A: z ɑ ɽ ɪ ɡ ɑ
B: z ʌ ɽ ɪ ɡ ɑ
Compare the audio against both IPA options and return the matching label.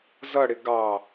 B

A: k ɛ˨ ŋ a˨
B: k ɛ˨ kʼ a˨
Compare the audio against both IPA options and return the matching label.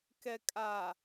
B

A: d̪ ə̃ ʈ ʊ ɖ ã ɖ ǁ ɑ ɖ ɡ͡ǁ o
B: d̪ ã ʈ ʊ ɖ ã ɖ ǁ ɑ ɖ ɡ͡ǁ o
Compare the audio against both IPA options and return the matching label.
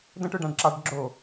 A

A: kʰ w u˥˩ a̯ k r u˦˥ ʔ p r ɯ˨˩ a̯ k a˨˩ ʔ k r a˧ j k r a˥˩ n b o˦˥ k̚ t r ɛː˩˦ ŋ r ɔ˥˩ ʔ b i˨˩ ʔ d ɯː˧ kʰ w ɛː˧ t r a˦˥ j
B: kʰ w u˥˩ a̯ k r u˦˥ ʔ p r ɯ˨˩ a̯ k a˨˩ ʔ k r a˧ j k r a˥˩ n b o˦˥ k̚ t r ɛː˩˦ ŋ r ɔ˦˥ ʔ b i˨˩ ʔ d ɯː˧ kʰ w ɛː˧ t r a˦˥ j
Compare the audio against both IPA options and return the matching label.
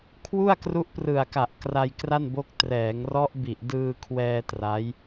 B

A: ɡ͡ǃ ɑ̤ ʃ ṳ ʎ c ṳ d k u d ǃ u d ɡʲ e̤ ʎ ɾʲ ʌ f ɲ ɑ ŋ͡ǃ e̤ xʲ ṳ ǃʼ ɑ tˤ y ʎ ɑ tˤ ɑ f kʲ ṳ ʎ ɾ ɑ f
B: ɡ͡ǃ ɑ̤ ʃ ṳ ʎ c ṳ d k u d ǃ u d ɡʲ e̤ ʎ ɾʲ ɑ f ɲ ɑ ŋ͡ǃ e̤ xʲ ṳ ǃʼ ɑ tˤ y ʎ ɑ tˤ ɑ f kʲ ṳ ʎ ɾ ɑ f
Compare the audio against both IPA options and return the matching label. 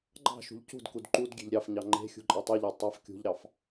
B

